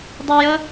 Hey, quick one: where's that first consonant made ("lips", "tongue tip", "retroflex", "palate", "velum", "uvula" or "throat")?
tongue tip